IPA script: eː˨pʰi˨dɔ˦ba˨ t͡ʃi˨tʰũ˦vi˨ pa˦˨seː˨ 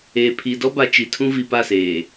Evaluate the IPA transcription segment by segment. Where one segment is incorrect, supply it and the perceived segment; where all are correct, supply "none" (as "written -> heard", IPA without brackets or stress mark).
none